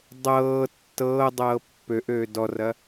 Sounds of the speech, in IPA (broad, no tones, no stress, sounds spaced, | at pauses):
dˤ ɤː tː ɤː dˤ ɤː pː ø ʔ øː d ɔ r ɐ